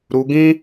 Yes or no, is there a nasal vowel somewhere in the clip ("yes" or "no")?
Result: yes